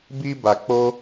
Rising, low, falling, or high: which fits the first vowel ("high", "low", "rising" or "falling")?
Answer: high